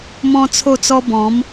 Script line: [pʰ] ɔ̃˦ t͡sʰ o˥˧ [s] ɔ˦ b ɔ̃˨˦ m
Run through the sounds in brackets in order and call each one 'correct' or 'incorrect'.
incorrect: m, incorrect: t͡s

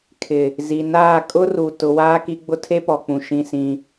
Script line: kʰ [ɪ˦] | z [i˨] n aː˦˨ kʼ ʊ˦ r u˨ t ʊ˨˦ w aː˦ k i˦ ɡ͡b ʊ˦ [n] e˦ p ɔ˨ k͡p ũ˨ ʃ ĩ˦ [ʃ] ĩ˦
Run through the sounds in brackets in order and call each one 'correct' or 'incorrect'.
incorrect: ɪ˨, correct, incorrect: tʰ, incorrect: s

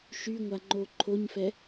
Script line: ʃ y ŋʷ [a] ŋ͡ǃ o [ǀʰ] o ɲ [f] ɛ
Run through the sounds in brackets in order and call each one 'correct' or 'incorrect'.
correct, incorrect: ǃʰ, correct

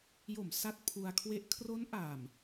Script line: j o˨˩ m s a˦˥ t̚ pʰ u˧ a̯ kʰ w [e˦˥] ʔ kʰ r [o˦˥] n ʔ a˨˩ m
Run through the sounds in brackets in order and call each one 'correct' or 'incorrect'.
correct, correct

